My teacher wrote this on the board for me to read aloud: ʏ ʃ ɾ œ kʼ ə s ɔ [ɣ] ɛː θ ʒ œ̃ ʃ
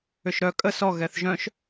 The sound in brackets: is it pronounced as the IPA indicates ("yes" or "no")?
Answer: yes